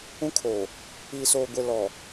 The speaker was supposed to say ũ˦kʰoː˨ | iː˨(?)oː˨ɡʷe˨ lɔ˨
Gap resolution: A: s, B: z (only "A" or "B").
A